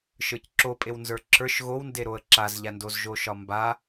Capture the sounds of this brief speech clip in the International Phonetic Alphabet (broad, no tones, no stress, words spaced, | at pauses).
ʃə˞cǁopʼew nzə˞ǁʰə˞ʃ ɣownde ɾoə̯ǁazʎandoz ʒoʃɒmba